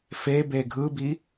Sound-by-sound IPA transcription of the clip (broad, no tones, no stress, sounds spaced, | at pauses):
f e b e ɡʱ ɯ b i